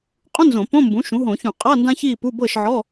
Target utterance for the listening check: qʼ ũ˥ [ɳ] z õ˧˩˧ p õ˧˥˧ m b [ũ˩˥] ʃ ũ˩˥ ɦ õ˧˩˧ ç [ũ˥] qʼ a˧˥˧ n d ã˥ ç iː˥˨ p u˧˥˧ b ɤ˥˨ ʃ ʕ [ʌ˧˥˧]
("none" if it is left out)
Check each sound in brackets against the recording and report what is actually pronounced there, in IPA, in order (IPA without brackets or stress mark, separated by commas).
n, ũ˩˥, ũ˧˩˧, ɔ˧˥˧